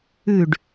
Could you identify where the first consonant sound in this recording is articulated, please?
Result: retroflex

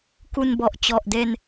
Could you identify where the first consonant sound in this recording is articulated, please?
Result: velar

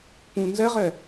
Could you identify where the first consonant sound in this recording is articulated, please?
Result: labial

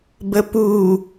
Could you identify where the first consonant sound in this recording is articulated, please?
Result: labial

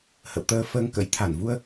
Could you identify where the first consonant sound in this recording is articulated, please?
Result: glottal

